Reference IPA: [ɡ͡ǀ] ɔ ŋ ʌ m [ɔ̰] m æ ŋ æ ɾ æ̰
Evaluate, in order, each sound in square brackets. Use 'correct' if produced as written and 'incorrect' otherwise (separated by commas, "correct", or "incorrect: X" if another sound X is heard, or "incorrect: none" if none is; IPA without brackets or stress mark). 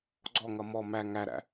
correct, incorrect: ɔ